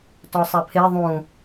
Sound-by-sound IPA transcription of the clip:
t ɔ sˤ ɛ pʰ e ðˤ ũ

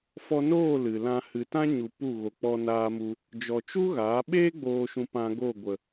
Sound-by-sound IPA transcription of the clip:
f ɔ˧ n oː˦˨ l ɨ˨ l ã˧ h ɨ˨ t ã˦ ɲ u˨ p u˦˨ ɣ o˨ k͡p ɔ˧ n aː˧ m u˧ | d͡ʒ ɔ˨ t͡ʃ u˦ ɣ aː˨˦ ɓ eː˦ ɡ͡b oː˨ ʃ ũ˨ p ã˧ ɡ o˦˨ ɡʷ ə˨

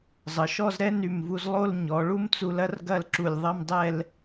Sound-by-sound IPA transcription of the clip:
zˤ ə˩˧ ʃ ɔ˥˧ z ɾ ɛ˥ n y˧˩ m v u˧ z lˠ o˥˧ l ɲ ɔ˩˧ ɭ u˥ m t͡s u˧ l ɐ˥ r ɡ ɐ˥˧ l ǁ u˧˩ lʲ ðˤ ɐ˥˧ m dˤ ɛ˥˧ l

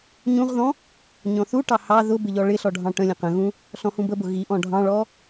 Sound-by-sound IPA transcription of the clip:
ɲ ũ ʁ ð ɔ̃ | ɲ ɔ̃ θ u ʈ ɑ h ɑ ð ʊ b ɪ ʎ ɔ ɭ ɪ ɬ ɔ ɖʱ ɑ̃ ʈ ə̃ lʲ ə̃ q ə̃ ɣ ũ | ɬ ɔ̃ h ũ b ə b ʊ ɣ i ʔ ɔ̃ ɖʱ ɑ̃ ɭ ɔ

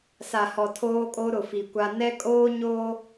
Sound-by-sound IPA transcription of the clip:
s a˨ h ɔ˨ tʰ oː˦ kʼ o˦ ɾ ʊ˨ f i˨ kʷ a˦ n ɛ˦ kʼ oː˦ ɲ o˦

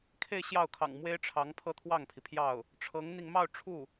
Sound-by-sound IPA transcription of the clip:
kʰ e˥˧ ɪ̯ ɕ j ɑ˥˩ ʊ̯ kʰ ɑ̰˨˩ ŋ m w e˥ ɪ̯ ʈ͡ʂʰ ɑ˧˥ ŋ pʰ ɤ˥ t̪ʰ w ɑ˥˩ ŋ pʰ i˩ pʰ j ɑ˥˩ ʊ̯ | ʈ͡ʂʰ ɤ˧˥ ŋ n̪ i˧ ŋ m ɑ˥˧ ʊ̯ ʈ͡ʂʰ u˥˩

